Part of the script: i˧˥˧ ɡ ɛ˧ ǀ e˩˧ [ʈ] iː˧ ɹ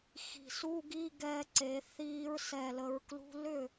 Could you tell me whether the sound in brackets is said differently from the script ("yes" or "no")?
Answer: yes